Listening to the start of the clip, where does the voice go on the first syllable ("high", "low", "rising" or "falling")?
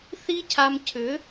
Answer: high